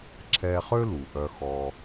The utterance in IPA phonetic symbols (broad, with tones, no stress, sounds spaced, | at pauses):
ǁʰ ɛ˧ χ ø˥ l u˩ ʔ œ˧ x ɔ˧